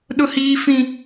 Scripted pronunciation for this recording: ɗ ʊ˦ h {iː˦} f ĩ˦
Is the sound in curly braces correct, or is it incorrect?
correct